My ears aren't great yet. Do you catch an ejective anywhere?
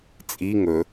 yes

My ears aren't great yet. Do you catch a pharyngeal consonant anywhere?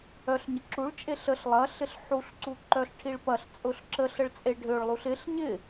yes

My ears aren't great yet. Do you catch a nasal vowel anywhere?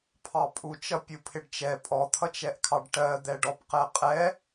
no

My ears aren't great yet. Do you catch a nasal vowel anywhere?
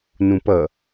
yes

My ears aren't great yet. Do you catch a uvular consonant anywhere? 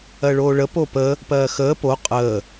yes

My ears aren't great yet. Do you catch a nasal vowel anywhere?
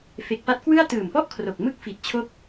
no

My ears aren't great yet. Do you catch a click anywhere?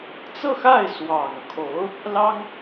no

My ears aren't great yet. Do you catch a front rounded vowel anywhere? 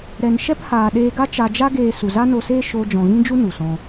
no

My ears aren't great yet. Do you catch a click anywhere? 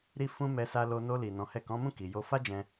no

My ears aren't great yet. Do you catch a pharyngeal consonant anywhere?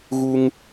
no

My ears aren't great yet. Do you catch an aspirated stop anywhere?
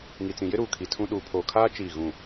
yes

